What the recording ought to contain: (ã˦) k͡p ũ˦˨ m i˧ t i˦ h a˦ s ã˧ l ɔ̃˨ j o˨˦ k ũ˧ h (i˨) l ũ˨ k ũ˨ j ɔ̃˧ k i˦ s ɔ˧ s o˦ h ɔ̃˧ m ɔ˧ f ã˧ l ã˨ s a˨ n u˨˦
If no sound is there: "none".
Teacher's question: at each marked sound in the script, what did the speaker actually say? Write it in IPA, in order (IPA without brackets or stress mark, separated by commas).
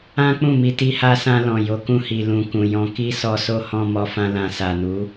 ã˦, i˨